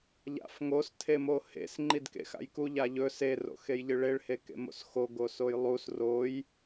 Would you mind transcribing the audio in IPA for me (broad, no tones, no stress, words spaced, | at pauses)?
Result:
ʎa̰fŋos tʰemohḛs ŋ͡ǃidkḛxa̰jku ʎaʎɵ se ro̰xejʎɨɭeɭ hekḛmo̰sxo ɡosojlˠus roj